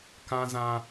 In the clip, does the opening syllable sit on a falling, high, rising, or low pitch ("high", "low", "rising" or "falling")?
high